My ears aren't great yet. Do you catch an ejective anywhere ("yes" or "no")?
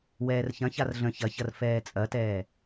yes